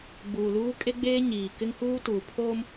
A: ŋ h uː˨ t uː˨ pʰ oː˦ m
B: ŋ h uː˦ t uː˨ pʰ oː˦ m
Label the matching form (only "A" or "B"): B